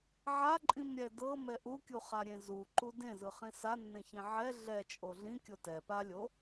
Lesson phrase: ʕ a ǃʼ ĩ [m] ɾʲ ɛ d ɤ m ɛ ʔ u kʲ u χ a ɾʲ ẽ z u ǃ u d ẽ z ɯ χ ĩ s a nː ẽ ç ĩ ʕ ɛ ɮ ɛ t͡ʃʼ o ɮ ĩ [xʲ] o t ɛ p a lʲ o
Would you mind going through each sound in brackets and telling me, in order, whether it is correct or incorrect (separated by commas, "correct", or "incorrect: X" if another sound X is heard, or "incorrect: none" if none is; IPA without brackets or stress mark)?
correct, incorrect: kʲ